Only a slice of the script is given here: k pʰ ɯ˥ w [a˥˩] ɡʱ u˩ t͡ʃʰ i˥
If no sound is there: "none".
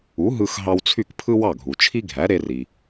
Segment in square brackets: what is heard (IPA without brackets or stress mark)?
ɑ˥˩